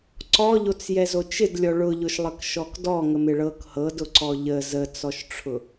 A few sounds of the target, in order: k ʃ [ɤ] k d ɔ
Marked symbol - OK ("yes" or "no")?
no